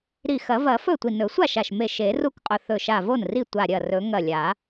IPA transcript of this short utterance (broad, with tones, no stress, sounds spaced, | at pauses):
ɾ i˧˩ x ɐ˨˩˦ v ɐ˨˩˦ f ɵ˥˩ tʷ i˧˩ n ɵ˨˩˦ sʷ a˥˩ ʃ a˧˩ ʃ m e˧˩ ʃ e˨˩˦ r u˥˩ k qʼ ɵ˧˩ θ ɵ˧˩ ʃ a˧˩ v o˥˩ n r i˥˩ tʷ a˧˩ ɾʲ ɐ˥˩ r ɵ˨˩˦ ŋ ɐ˧˩ lʲ a˨˩˦